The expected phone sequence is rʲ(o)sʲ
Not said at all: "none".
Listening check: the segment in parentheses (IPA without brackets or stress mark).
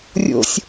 o̰